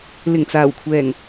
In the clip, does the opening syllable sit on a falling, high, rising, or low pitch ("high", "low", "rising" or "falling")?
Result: low